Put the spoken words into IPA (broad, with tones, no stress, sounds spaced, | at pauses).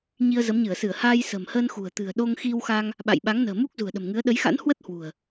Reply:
ɲ i˧ ə̯ z ə˨˦ m ɲ ɨ˧˩ ə̯ s ɨ˧˩ ə̯ h aː˧ j s ə̤˨˩ m h əː˧ n x ṳ˨˩ ə̯ t̪ ɨ̤˨˩ ə̯ ɗ o˧ ŋ x i˧ w x a˧ ŋ | ɓ a̰˧˨ j ɓ a˨˦ ŋ n ə̤ː˨˩ m u˦˥ k̚ z ṳ˨˩ ə̯ ɗ ə̤˨˩ m ŋ ɨ˨˦ ə̯ ɗ ə˨˦ j x a̰˧˥ n h w ə˦˥ t̚ h w ṳ˨˩ ə̯